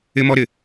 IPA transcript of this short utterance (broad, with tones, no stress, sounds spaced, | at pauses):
ɪ˦ m ɔ˦ ɾ ɪ˨